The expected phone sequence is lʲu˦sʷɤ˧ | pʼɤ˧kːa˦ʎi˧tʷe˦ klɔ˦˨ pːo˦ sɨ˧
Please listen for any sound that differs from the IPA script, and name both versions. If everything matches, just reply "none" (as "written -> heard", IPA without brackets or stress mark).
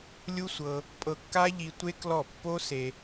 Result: ɨ˧ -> e˧